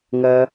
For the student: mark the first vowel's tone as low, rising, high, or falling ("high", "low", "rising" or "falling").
high